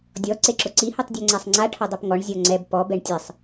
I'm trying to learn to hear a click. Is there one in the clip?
yes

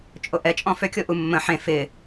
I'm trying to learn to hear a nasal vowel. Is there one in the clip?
yes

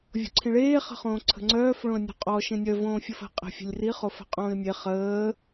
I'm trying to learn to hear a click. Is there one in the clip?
yes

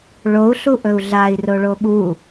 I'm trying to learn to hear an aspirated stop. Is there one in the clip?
no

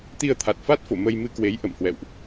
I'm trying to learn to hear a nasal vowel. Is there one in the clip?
no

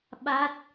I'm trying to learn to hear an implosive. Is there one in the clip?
yes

